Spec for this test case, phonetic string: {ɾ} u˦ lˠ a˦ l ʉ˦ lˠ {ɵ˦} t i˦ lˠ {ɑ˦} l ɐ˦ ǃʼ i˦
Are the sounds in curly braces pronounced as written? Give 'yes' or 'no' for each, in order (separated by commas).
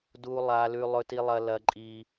no, yes, no